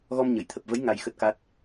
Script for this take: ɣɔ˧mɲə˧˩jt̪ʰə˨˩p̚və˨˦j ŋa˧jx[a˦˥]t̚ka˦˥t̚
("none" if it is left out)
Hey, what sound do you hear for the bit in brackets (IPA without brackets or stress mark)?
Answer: ə˦˥